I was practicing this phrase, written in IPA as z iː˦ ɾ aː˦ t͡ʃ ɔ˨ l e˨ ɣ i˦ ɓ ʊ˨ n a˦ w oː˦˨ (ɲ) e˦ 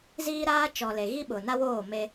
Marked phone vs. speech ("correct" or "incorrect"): incorrect